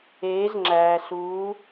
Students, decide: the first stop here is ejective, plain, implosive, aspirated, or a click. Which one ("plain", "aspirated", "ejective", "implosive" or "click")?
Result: click